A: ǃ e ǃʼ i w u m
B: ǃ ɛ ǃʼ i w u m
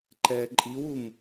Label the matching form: B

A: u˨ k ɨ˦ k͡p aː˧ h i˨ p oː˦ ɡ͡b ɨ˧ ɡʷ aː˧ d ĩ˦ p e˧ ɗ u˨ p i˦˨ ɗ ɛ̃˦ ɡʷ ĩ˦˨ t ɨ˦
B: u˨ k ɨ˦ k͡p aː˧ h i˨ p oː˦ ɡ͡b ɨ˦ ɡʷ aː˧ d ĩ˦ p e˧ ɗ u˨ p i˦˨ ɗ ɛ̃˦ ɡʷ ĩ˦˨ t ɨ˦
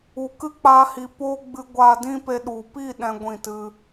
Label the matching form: A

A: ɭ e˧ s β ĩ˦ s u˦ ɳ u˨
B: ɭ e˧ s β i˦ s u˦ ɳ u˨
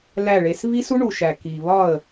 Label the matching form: B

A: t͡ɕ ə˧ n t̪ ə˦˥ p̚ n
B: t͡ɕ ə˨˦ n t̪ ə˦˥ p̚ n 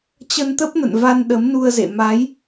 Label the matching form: A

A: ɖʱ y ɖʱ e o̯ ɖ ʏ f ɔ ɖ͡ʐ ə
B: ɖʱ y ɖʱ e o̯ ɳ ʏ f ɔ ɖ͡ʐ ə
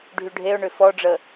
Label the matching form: B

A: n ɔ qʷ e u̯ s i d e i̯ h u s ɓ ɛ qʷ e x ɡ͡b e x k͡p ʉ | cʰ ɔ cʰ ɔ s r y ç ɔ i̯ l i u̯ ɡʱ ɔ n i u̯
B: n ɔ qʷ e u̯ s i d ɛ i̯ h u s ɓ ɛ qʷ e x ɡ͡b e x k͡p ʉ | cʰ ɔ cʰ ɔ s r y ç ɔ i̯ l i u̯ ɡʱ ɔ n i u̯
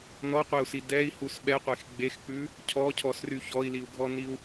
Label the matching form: B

